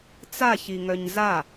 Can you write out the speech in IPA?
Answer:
t͡saçiŋœɲ za

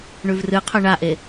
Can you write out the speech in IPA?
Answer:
ɳʉvrɨqʰɵ ɳaʔe

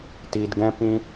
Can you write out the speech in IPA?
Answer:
ti˧dɡɛ̃˦ pĩ˦

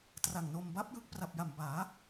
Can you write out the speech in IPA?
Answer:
tra˨˩ŋno˧m ba˦˥p̚jɯ˦˥k̚ pra˨˩p̚ja˨˩mbaː˩˦

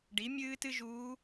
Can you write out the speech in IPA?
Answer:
ɖi˩˥mʲɨː˥tɨ˥ʒuː˧˥

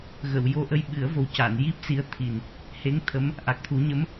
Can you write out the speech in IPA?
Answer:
ɣə˨˩˨w jo˧ʔə˧j ɓɨ˨˩˦ə̯vo˨˩wca˨˩˨n ji˦˥p̚si˧˥ə̯t̪ʰi˨˩n | he˧˥ŋ t̪ʰə˧˥m | ʔa˨˩k̚t̪ʰu˨˩˦ɲə˧˥m

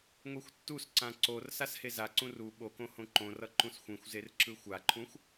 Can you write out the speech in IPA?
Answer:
ŋʷixʷtːusǀã ǀor sashezaǀũ ru ɓokõ hõǃõrʌ ǃũsxʷĩxʷzer ǁɯxʷaǃʰũxʷ

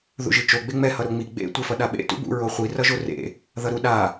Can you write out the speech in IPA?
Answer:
ðṵʒit͡ʃo ɡ͡beŋ͡mɛ hʌɾoŋ͡mi ɡ͡bḛ tʷɛfʌɗaɓḛ tṵbṵ ɹoχʷi rʌʒorḛ | ðʌɾu ɗa

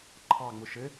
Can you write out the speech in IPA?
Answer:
ǃʰɑŋ͡mʊ ʃɘ

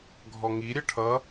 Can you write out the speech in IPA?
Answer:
ɡʱɔŋi ɾʲɜʈʰʌ

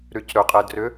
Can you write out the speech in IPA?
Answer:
ɾycɾɵ qʼɛdrʏ

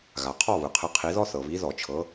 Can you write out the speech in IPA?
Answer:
ɣa˩qʰɔ˦˨ βɯ˩qʰɯ˨˦qʰi˨˦ðɔ˥ θɤ˩βi˨˦ðɔ˨˩˦t͡ʃʰɤ˨˦

